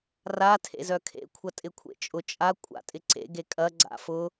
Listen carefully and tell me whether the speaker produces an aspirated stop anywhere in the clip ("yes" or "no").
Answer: yes